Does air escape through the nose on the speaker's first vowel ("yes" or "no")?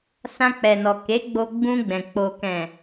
yes